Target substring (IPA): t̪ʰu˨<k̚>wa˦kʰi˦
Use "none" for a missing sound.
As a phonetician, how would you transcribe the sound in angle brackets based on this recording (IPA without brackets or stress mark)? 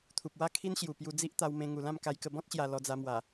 p̚